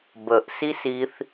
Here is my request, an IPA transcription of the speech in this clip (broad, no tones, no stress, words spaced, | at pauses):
bəʔ sisiθ